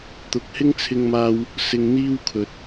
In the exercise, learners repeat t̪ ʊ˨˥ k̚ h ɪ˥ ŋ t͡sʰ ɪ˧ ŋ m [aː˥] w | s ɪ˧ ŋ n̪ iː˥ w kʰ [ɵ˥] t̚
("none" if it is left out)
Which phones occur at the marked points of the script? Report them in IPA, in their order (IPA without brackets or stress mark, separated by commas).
aː˧, ɵ˨